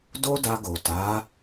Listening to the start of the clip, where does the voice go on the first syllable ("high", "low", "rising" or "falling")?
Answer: high